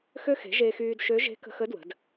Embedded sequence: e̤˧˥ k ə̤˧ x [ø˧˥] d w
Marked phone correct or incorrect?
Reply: incorrect